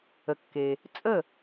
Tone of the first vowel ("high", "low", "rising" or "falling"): low